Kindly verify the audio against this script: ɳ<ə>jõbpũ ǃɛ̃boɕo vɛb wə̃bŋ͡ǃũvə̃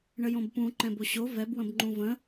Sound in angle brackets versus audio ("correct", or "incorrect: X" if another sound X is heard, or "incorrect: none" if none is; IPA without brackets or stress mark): correct